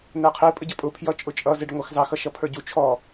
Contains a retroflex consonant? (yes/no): yes